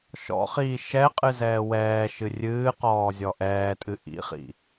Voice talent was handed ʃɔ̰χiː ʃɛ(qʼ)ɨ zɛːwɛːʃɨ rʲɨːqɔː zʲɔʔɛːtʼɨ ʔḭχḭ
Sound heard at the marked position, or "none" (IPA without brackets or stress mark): qʼ